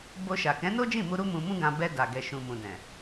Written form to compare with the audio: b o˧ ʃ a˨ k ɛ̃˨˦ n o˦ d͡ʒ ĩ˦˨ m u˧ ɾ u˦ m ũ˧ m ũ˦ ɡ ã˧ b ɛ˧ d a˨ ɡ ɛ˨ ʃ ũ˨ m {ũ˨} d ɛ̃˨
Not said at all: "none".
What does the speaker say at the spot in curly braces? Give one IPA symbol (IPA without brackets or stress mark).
ũ˨